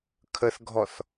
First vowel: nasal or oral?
oral